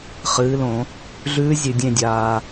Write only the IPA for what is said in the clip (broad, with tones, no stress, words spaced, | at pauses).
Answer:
χɨː˩˥lõ˨˩˦ | ɮʉː˧˥zʲʉ˨ dʲẽ˦˨dʲaː˨